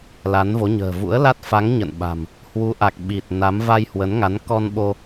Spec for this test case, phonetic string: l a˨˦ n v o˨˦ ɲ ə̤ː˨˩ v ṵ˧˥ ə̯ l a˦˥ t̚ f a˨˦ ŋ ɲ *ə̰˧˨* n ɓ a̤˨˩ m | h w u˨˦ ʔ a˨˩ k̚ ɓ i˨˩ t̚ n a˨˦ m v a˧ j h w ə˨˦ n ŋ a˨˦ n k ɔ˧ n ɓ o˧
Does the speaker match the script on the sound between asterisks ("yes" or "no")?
yes